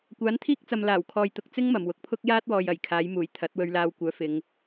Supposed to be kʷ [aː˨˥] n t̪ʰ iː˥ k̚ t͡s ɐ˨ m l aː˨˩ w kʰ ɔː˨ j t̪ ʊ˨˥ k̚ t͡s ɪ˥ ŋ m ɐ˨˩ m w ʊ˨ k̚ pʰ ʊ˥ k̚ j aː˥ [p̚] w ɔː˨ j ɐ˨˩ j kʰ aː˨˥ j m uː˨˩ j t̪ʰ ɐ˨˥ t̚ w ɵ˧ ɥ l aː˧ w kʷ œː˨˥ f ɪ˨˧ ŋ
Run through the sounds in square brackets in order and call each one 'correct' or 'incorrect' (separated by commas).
correct, incorrect